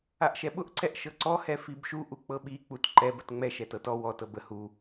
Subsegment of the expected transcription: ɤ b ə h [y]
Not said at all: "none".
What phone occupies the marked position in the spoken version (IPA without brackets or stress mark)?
u